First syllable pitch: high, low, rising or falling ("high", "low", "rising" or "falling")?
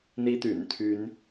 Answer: high